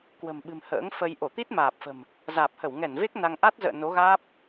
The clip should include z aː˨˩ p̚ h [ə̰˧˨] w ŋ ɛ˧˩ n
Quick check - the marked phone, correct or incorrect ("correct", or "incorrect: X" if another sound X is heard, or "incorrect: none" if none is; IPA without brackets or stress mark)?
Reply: incorrect: ə˧˩